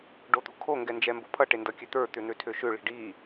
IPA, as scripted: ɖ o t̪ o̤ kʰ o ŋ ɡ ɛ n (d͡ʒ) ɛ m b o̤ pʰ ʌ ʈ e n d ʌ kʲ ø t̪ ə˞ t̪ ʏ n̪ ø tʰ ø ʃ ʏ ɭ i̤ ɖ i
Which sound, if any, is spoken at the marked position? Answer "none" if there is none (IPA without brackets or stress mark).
d͡ʒ